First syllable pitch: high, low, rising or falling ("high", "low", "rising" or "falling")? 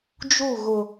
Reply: falling